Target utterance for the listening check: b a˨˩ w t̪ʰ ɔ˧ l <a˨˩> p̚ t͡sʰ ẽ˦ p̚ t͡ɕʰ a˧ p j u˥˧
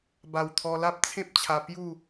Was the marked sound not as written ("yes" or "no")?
yes